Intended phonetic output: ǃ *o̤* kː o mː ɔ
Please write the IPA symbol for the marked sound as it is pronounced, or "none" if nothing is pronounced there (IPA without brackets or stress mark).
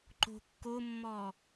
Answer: o̤